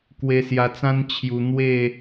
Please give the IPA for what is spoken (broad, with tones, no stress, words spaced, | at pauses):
kwe˧sja˧t͡sã˦n t͡ɕʰju˧ n̪we˥˧